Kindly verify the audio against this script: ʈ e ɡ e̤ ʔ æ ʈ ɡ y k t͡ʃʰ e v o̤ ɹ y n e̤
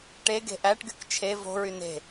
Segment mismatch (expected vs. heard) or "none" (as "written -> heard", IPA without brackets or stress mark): none